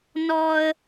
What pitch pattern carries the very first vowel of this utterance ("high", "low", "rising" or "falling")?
high